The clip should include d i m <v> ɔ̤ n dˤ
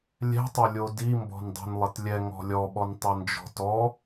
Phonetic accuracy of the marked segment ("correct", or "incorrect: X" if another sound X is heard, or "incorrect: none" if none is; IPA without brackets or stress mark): incorrect: b